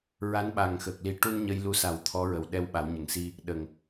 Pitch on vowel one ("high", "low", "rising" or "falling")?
rising